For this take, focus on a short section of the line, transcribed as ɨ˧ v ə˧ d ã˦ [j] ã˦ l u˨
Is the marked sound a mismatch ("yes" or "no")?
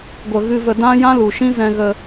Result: no